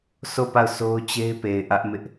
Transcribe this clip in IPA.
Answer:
s o˦˨ p a˦˨ ʊ̯ sʰ o˦ ʊ̯ t͡ɕ e˦ ɪ̯ p e˨ ɪ̯ ʔ ä˦ ʔ m ɪ˦ ʔ

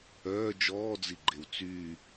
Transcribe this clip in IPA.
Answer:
œː d͡ʒ ɔː d͡z i ɡ͡ǃ e w t͡s yː

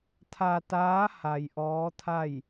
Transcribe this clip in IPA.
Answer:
t̪ʰ a˧ t̪ aː˧˥ h a˧ j ʔ ɔː˧˥ t̪ʰ a˥˨ j

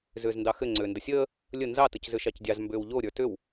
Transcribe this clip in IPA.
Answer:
z ʏː z n d ɑ x ɘ ŋ͡ǀ ʏː n d ə sʲ əː | lʲ ə n z ɑ t ə c z ʏ ʃ ɑ c dʲ ɑ z m b ʏː w ʎ o ɾʲ ə˞ t ʏ w

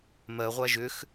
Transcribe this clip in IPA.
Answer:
m ɜ ʁʷ a ʒ ʏ x

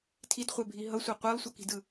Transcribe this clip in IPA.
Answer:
tʰ i d χʷ ɛ bʱ i ɦ ʌ sʷ a qʷ ɛ lˠ sʷ ʌ k i̤ d ɯ

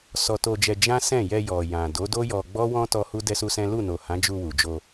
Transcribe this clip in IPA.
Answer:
s ɔ˧ t o˧ d͡ʒ ɛ˧ d͡ʒ ã˦ s ɛ̃˦˨ j ɛ˧ j ɔ˨ j ã˨ d o˨˦ d o˦ j ɔ˧ ɡ͡b ɔ˦ w ɔ̃˦ t ɔ˦ h u˦ d ɛ˦ s u˦ s ɛ̃˦ l u˦˨ n o˨ h ã˨˦ d͡ʒ u˧ w u˨ d͡ʒ o˧

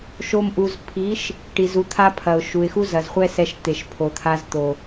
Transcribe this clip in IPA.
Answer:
ʃ o˧ m ʔ u˨ z pʰ i˨˦ ʃ | ʈ i˨ z u˧ t̪ʰ a˦ pʰ ɐ˨ ʊ̯ ʃ u˨ ɪ̯ x u˦ z ɐ˨ z χʷ ɛ˦ s ɛ˧ ʃ t̪ e˨ ʃ pʰ o˨ t̪ʰ a˧ z t̪ o˨

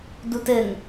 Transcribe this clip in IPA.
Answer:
d u t ɘ ŋ

